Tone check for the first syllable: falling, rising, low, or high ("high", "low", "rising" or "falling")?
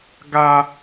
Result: high